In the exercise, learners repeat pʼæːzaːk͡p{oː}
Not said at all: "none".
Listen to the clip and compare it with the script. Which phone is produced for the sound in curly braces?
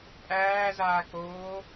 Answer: oː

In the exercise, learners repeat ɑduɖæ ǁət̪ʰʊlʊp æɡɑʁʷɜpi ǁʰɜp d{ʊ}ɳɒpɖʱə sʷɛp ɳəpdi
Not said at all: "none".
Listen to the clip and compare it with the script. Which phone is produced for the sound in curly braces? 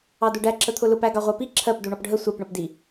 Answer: u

